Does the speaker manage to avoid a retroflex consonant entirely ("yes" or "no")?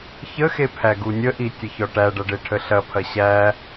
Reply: no